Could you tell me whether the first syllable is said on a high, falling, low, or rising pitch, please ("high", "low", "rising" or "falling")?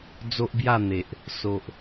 high